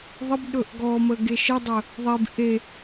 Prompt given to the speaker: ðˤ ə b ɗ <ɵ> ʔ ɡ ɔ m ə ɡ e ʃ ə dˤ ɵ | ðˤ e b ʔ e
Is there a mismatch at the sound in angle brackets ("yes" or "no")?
no